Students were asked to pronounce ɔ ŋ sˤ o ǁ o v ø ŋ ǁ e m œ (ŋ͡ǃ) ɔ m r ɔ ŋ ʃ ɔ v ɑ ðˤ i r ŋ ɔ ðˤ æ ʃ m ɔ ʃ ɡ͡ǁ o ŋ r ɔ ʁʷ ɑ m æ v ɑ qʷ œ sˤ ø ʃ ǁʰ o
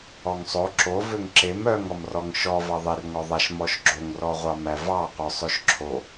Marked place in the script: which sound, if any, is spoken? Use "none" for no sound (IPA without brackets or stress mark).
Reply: ŋ